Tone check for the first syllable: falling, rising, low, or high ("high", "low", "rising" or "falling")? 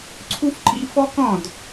high